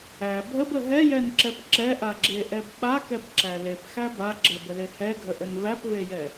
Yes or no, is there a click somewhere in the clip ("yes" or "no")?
yes